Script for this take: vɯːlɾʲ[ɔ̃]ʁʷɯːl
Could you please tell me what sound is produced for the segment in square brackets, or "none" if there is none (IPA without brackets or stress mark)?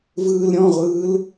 ɔ̃